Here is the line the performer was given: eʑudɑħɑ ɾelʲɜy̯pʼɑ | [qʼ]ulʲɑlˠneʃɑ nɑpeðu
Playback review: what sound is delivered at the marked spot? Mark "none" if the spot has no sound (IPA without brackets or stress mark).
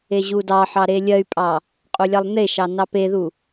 qʼ